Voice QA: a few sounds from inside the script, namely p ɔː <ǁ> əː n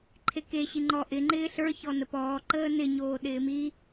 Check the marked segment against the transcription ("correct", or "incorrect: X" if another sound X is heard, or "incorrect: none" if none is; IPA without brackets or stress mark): incorrect: ǃ